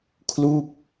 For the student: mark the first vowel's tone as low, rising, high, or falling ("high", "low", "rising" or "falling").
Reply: falling